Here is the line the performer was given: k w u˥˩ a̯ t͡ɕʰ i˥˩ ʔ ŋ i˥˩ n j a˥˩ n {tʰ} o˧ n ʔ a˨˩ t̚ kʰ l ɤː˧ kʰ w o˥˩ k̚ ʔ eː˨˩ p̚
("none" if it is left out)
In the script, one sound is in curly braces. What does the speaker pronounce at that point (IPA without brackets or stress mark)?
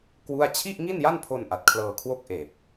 pʰ